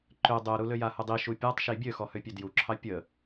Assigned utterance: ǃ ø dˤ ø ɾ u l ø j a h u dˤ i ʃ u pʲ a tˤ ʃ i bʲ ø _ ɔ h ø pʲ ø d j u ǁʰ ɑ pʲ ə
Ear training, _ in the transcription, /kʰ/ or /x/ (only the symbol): x